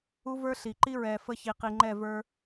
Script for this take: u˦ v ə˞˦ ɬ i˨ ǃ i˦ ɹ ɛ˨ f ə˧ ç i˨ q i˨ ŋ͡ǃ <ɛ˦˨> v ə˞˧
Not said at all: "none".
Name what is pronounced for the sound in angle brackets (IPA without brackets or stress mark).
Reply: ɛ˦˨